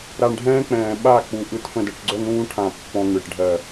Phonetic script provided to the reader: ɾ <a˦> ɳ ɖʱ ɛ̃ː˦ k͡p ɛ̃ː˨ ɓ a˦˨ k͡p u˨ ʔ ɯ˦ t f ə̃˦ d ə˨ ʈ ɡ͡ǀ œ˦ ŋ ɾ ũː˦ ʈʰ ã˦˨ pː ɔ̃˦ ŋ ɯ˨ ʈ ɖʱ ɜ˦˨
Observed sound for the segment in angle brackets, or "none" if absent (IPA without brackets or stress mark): a˨